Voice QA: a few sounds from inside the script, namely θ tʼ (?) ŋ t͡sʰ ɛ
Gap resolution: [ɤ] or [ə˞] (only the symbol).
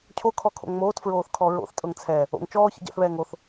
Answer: ɤ